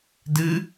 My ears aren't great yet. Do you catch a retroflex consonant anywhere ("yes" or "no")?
no